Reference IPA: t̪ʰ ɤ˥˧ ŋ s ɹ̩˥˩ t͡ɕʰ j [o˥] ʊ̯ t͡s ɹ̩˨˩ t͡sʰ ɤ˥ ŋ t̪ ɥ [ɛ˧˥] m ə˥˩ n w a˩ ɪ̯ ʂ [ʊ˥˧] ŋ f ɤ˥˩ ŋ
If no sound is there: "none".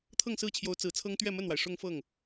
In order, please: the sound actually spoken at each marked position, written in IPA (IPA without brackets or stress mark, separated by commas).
o˧˥, ɛ˥˧, ʊ˥˧